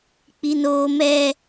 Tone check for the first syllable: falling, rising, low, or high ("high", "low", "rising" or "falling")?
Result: high